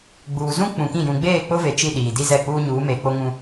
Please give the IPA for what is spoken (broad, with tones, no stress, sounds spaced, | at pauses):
ɡ͡b uː˨ z ũ˦ k͡p ũ˨ k ĩ˦˨ j ũ˨ ɡ͡b eː˦˨ k͡p ʊ˦ v e˨ t͡ʃ i˦˨ ɗ iː˨ d i˦ z ɛ˦˨ k͡p uː˦ ɲ uː˨˦ m eː˨ k͡p o˦ ŋ ũ˦